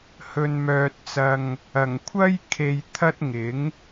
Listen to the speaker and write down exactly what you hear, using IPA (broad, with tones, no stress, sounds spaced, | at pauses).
h ɵ˨ n m œː˨ t̚ t͡s ɐ˨ ŋ | ɐ˨˩ ŋ kʷʰ ɐ˥ j kʰ e˨ j t̪ʰ ɐ˥ t̚ ŋ ɪ˨˥ ŋ